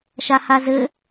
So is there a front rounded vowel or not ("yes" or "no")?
no